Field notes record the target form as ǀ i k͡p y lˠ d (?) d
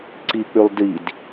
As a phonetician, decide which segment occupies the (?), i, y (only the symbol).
i